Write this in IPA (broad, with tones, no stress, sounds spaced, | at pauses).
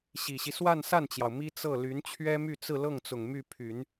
ɕ i˨˩ ɕ i˦ s w a˥˧ n s a˥˩ n t͡ɕ j ɑ˩ ʊ̯ m i˥ t͡s ɤ˥˩ l y˧˥ n t͡ɕʰ ɥ ɛ˥ m y˥˧ t͡s ɹ̩˥˧ l ɤ˥˩ ŋ t͡s ʊ˨˩ ŋ m y˥˩ pʰ y˨˩˦ n